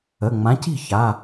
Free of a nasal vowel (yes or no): no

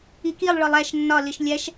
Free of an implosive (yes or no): yes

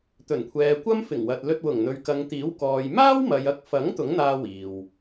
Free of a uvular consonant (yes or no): yes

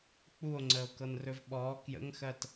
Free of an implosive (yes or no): no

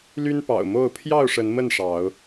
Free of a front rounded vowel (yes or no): no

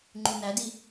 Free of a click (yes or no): no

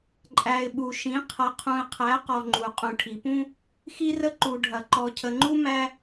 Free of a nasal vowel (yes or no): no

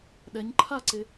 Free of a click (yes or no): no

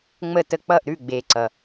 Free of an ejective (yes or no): yes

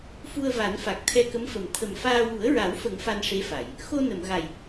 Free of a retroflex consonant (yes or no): no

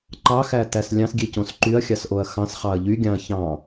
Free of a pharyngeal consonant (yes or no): yes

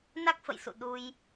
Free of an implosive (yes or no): no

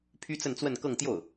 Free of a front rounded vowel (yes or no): no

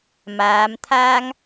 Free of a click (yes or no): yes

